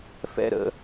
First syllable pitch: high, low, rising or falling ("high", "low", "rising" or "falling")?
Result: falling